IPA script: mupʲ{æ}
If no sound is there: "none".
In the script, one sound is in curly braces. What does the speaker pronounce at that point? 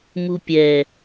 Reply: ɛ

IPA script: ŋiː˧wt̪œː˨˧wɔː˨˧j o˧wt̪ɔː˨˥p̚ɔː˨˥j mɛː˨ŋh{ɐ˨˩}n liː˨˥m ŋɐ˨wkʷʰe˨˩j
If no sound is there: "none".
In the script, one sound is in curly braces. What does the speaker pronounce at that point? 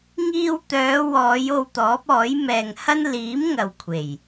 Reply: ɐ˥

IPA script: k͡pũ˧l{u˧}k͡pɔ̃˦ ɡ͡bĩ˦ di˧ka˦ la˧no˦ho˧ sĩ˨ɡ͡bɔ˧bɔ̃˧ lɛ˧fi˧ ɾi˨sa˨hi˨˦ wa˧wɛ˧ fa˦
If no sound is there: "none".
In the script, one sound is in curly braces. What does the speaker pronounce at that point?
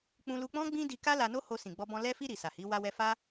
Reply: u˧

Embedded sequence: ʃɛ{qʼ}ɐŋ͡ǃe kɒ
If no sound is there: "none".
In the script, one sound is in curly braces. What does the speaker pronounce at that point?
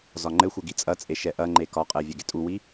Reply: ʔ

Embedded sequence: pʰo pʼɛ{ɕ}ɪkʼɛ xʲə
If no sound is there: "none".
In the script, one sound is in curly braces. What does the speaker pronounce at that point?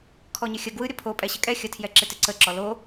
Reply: ɕ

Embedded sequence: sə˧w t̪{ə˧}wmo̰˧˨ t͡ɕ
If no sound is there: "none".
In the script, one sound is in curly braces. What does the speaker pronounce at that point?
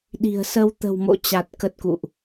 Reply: ə̤˨˩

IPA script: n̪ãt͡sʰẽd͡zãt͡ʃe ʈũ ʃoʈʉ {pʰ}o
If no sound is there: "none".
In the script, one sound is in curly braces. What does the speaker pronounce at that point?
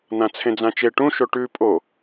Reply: pʼ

